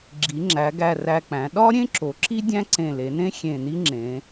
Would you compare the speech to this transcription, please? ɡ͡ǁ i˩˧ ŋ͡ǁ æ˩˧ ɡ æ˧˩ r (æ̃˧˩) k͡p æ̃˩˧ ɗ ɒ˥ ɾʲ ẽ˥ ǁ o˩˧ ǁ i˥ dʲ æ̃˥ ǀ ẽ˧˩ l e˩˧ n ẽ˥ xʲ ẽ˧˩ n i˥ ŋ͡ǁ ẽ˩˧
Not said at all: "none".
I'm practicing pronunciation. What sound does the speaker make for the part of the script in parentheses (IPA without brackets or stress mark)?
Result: æ˧˩